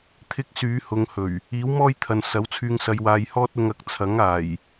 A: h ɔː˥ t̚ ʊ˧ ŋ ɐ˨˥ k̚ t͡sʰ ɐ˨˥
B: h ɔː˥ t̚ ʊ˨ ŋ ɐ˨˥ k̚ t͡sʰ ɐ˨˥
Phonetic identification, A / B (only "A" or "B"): A